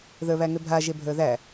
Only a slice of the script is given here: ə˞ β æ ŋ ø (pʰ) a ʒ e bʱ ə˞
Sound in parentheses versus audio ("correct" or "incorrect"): incorrect